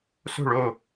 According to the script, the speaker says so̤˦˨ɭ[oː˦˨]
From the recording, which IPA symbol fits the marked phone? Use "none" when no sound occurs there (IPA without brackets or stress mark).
oː˦˨